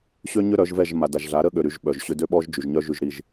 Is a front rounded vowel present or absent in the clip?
present